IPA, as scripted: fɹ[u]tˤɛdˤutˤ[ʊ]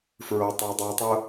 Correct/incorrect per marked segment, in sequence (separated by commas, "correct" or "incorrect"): incorrect, correct